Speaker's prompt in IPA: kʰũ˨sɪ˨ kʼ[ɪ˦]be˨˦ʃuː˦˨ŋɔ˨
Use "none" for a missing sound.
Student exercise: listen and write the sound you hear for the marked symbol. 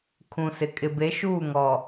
ɪ˨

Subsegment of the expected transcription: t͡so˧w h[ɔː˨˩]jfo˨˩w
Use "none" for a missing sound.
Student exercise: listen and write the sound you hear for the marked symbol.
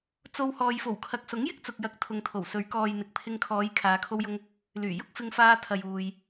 ɔː˨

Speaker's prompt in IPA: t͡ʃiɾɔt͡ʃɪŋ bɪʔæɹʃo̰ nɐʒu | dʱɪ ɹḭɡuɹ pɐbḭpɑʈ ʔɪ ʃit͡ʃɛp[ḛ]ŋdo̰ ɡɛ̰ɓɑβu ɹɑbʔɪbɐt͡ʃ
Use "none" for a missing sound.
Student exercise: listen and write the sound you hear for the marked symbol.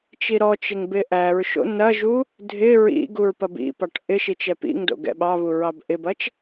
ḭ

